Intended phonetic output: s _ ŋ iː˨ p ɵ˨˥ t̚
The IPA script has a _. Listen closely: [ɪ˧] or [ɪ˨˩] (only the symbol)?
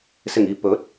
ɪ˨˩